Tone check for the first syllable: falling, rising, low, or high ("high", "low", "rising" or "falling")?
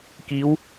rising